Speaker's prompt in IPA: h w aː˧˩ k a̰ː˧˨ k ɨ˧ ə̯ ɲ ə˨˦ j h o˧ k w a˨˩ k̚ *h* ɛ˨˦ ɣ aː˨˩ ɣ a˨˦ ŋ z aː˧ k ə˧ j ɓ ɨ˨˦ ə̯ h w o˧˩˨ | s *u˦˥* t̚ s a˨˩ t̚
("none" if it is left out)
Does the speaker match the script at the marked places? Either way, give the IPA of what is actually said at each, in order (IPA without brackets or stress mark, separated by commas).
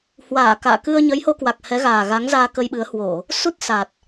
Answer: h, u˦˥